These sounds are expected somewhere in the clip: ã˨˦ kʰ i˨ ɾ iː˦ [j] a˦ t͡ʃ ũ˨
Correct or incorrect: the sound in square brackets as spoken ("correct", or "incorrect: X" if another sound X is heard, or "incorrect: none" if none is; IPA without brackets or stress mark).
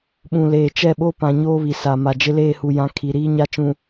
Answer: incorrect: ɲ